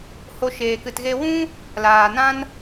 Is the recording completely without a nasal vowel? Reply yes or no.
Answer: no